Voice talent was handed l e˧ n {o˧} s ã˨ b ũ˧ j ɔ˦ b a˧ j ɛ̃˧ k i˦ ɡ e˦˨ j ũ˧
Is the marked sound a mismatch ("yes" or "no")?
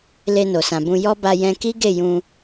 yes